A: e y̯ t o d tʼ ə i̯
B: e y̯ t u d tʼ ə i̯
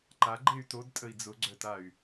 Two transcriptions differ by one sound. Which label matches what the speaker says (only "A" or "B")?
A